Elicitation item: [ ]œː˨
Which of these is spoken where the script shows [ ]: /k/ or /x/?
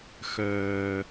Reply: x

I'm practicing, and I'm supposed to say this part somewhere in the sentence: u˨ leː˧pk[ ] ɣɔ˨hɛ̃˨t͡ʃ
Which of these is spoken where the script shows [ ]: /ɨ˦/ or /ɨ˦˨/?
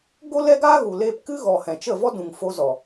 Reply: ɨ˦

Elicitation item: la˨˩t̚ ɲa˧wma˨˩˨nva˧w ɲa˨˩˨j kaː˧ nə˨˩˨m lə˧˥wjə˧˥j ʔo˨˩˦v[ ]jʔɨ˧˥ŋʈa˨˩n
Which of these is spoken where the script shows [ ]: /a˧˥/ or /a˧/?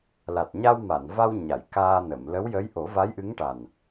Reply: a˧˥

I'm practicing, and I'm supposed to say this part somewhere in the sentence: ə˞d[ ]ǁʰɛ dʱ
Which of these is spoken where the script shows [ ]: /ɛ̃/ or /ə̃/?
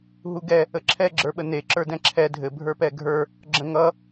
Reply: ɛ̃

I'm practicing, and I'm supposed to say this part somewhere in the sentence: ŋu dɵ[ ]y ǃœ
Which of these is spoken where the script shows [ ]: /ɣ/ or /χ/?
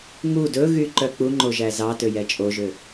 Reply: ɣ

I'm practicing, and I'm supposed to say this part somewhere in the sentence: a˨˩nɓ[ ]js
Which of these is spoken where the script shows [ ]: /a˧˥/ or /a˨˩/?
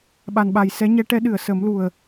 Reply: a˨˩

